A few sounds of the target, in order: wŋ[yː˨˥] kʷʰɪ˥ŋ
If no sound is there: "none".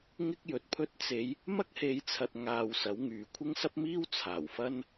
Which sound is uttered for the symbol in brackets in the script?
yː˨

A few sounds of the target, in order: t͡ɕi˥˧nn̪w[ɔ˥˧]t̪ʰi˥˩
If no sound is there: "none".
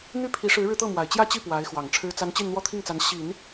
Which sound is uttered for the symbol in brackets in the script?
ɔ˥˧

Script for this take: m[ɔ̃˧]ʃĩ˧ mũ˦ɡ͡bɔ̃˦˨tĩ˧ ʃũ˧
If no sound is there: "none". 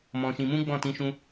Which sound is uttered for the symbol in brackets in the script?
ɔ̃˧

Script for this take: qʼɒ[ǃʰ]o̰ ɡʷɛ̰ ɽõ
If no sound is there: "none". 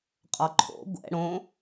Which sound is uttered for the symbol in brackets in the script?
ǃʰ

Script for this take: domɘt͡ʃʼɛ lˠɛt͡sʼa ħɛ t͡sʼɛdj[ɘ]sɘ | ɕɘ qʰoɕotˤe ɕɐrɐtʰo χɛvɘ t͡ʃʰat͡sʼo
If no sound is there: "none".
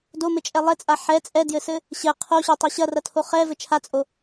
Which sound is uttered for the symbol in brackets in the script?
ɘ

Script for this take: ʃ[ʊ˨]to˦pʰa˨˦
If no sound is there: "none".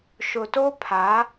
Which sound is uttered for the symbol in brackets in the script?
ʊ˨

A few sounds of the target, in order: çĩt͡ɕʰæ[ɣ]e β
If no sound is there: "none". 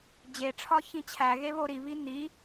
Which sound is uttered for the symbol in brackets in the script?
ɣ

